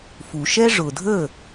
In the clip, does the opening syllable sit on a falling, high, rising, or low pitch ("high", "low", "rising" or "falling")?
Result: low